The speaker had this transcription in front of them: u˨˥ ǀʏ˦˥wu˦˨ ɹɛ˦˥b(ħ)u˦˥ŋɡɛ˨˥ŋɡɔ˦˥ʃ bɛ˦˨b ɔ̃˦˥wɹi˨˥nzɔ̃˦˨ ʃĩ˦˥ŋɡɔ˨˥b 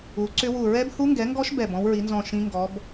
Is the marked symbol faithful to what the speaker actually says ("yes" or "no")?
no